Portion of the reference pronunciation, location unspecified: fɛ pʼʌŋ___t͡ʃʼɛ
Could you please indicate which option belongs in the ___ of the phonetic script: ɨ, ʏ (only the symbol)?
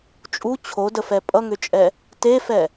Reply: ʏ